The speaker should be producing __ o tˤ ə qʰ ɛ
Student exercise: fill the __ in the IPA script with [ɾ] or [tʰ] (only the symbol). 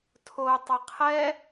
tʰ